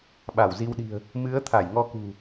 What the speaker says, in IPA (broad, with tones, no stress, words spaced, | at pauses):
ɓa˧˩wzi˧wɗi̤˨˩ə̯ | mɨ˨˦ə̯ t̪ʰa˧˩jŋɔ˧kṳ˨˩